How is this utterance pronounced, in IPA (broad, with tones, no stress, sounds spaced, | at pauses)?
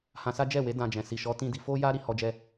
h ã˧ s a˦ d͡ʒ ɛ˦˨ w e˨˦ d ã˧ d͡ʒ ɛ̃˨ s i˨ ʃ ɔ˨˦ t ĩ˦ d i˧ f o˦ j a˦ ɾ i˦ h ɔ˦ d͡ʒ ɛ˦